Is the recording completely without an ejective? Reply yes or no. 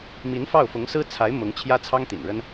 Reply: yes